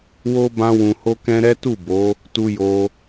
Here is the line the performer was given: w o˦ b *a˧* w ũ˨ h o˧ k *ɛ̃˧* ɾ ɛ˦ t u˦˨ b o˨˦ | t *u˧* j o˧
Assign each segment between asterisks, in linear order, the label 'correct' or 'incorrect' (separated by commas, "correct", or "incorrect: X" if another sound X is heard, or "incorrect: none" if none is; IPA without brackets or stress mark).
incorrect: ã˧, correct, correct